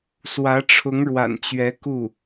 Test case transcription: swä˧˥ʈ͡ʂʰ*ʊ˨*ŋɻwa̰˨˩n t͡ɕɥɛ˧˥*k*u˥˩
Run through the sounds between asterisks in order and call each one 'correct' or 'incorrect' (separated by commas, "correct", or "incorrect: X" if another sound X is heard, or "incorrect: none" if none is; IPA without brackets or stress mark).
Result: incorrect: ʊ˧˥, correct